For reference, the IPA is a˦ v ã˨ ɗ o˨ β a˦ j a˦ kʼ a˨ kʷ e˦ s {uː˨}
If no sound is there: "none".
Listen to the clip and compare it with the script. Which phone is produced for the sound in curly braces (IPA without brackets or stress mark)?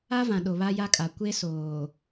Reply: oː˨